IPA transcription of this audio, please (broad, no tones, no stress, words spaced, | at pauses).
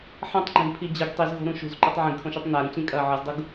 ħɐ̃tˤɡ͡ǃẽɡpʰi d͡ʑɨɡ tˤizɣo̤ɾũ ʃṳzǃotˤ ʕĩɡkʰõʃʉtˤ naɾũt͡ɕĩkʼɐː ʕɨzdˤuɡ